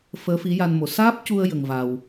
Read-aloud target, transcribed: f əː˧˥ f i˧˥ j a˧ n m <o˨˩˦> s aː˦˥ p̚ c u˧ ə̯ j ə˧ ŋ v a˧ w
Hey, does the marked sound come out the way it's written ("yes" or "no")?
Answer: yes